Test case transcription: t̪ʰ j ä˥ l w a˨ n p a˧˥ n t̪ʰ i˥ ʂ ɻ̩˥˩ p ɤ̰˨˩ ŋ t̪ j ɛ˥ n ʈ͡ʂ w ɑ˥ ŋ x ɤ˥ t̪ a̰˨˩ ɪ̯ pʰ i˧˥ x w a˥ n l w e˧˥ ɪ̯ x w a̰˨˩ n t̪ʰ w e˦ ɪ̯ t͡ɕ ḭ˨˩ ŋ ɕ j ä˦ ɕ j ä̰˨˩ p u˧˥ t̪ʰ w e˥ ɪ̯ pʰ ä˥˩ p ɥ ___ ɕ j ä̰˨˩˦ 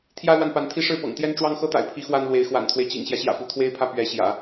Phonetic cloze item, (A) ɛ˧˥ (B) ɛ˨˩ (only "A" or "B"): A